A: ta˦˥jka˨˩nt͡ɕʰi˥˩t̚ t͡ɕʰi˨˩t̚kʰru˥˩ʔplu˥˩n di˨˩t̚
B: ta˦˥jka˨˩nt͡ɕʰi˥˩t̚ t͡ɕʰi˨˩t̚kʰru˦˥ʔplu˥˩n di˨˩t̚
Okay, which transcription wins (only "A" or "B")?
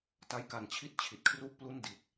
A